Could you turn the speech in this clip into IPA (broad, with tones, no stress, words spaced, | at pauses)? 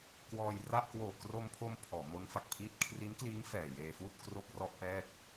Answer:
kwɔː˧jra˥˩ʔ kwoː˨˩kro˧mpʰo˧m pʰɔː˩˦mo˦˥nfa˨˩k̚pʰiː˥˩t̚ kʰri˦˥nkliː˦˥ŋ fɛː˨˩jeː˧fuː˥˩t̚ kro˥˩k̚rɔ˥˩ʔpɛː˥˩k̚